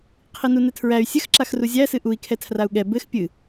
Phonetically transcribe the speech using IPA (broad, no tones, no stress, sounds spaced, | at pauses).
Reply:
qʰ i n u n ɘ tʰ ɹ æ y̯ sʲ ɘ x ǁ a x r u zʲ æ s ɨ ʔ u i̯ kʰ ɛ tʰ r a u̯ ɠ ɛ b ɘ x pʲ ɨ